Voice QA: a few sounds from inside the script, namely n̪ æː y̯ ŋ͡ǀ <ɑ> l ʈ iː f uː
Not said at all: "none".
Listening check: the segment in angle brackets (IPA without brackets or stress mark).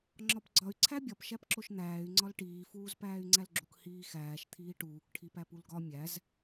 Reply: ɒ